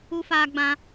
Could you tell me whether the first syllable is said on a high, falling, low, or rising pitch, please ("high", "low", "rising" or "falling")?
high